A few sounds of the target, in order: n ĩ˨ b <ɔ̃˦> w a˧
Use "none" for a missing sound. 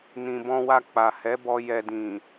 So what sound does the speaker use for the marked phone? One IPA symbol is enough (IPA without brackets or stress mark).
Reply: ɔ̃˧